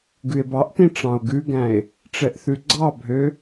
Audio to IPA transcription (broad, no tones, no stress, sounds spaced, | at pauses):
ɡ ʉ e̯ b ɑ ʔ t ĩ ʈ͡ʂ ɑ̃ o̯ ɡ ʉ ɡ æ̃ e̯ | ʈ͡ʂ ɛ ʔ θ ʉ ɡ͡ǀ ɑ bʱ ø